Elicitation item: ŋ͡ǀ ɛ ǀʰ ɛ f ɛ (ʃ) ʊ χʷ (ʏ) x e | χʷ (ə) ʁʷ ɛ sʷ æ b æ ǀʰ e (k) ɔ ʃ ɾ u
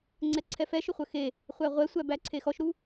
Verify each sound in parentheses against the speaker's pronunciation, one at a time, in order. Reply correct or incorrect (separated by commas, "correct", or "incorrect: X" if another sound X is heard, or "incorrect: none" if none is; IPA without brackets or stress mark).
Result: correct, incorrect: ə, incorrect: æ, incorrect: x